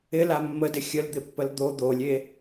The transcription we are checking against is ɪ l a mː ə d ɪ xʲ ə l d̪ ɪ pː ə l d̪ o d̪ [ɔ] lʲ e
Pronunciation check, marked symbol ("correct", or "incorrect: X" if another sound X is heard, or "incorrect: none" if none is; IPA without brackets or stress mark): incorrect: o